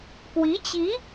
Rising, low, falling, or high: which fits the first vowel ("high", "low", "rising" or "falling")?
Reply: rising